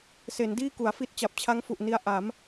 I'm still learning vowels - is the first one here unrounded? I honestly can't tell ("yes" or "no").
yes